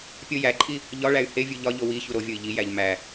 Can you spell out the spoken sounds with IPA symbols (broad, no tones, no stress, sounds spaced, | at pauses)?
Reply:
pʲ o j æ ǃʼ i | ʎ ɒ ɭ æ y̯ h e vʲ u ʎ ɒ ʎ o w i ç u ɾ o vʲ o i̯ ʎ i j æ ʎ m æ